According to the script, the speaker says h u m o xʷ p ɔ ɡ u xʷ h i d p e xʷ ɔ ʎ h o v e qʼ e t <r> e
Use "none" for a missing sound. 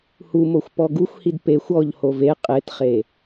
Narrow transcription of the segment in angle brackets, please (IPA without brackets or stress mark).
χ